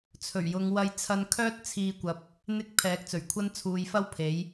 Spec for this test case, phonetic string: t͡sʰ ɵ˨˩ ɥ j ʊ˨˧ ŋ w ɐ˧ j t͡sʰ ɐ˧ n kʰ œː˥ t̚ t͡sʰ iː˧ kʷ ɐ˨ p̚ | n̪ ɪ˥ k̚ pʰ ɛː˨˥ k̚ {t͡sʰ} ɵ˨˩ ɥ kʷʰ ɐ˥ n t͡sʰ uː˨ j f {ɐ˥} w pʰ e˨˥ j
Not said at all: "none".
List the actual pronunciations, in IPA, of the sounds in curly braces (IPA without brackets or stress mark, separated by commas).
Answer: t͡s, ɐ˥